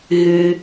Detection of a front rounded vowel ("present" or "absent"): present